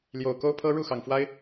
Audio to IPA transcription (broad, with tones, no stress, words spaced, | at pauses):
ljo˨˩ʊ̯ko˦ʊ̯pʰɤ˦ ɻu˥˨xɑ˨˩ŋfwa˦ɪ̯